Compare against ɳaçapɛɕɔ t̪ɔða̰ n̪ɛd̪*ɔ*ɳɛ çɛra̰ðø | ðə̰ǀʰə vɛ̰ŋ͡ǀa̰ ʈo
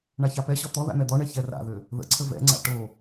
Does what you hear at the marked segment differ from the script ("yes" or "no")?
no